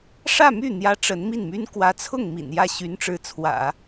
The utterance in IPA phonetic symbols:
ʂä˥˧my˥˩ n̪jä˥ʈ͡ʂə˧˥n mi˥˩nmy˥n kwä˧˥t͡sʰʊ˥˩ŋ mḭ˨˩njä˥˩ ɕy˧˥nʈ͡ʂɻ̩˧˥t͡sʰwä̰˨˩˦

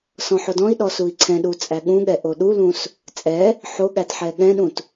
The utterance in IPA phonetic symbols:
sɔ̃ħodɔ̃i̯ɗɔ sui̯ǀʰɛ̃ɗu t͡sʼæɠũɠɛ ʔoɗulũs | t͡sʼɛ | ħo ɠætħɛɠɛ̃ɗũt

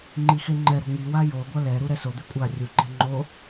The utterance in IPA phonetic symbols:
ŋ͡ǃixeŋ͡ǃɛɾo̤ ŋiwa joɡʷa lɛ ɾuɾɛsod̪e kʷʼa rʲuǃɛ̤ ŋ͡ǃo

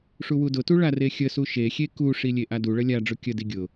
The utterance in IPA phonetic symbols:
ʂuwudʊtu ɭarexʲəsu ʃexʲe kuʂi lʲeʔaduɭə lʲa ɖ͡ʐʊkʲədi ɡʲʊ

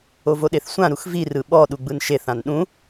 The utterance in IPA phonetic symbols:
ovoɗeθsʷã ɾuxvi rɯɓɔ ɗuɡ͡bɯnʃeθ ãnɗũ

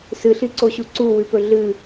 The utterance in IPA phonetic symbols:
sɨɬiǀoɕu ǀuwʉpɵ ɮɨ

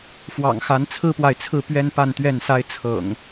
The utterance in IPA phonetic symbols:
fwɑ̰˨˩ŋxa˨˦n t͡sʰɹ̩˦pwa˨ɪ̯t͡sʰɹ̩˥˨ pɥɛ˦npa˥˨nt̪ɥɛ˥˨nsa˦ɪ̯ t͡sʰɤ̰˨˩ŋ

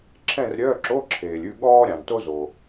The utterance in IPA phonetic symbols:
ǁʰɛ̃˥˧rɾʲœː˧˥˧ ǁo˧˥˧ǁʰeː˩lʲʉ˥˧ ɠɔː˥ɾʲɑ̃˩nto˥ zo˩

